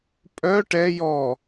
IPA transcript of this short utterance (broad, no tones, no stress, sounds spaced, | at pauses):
pʼ œ ʈ ɛ j ɔ